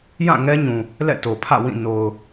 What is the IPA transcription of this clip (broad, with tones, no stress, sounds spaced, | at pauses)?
j ã˦˨ ŋ ɛ˦ ɲ ũ˨ | l ɛ̰˦˨ t o˨ pʰ ä̰˦˨ w ĩ˦˨ n o˨ ʊ̯